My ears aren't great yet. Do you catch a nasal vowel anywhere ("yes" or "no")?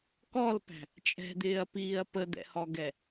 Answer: no